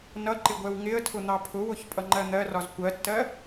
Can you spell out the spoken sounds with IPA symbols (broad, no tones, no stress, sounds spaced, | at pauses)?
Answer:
n ʌ ǃ ɪ ɡʷ ɛ w ŋ ɪ ə̯ tʰ ʊ n̪ ɑ pʰ ʊ w ʊ ç pʼ ʌ ŋ͡ǃ ɜ n̪ ɜ r ɒ z kʷ ɜ tː ɜ